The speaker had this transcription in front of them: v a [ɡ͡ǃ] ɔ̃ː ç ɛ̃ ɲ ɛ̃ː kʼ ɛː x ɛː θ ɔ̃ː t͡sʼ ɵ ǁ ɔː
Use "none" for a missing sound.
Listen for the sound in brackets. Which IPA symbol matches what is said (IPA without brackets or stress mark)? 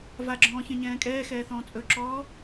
ɡ͡ǁ